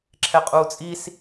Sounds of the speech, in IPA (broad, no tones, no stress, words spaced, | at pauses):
ǁʰɛqʼuːt͡sʼis